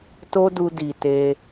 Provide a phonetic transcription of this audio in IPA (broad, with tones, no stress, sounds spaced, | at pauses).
t o˦ d u˧ d i˨ t e˧